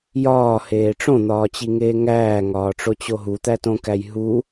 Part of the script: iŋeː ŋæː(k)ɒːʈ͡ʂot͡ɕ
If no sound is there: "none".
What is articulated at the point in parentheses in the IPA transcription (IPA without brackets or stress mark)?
ŋ